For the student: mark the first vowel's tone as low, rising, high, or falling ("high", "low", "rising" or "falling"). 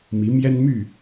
rising